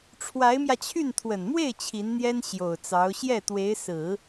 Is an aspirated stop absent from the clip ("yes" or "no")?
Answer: no